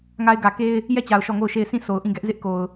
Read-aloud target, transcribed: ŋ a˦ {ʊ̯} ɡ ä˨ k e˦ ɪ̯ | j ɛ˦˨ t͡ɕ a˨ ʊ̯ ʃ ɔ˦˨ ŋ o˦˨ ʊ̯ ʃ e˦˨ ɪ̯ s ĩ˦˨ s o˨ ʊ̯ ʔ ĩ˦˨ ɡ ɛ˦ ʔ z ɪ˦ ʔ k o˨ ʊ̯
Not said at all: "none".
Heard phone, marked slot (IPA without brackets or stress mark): ɪ̯